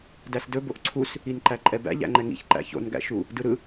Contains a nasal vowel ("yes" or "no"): no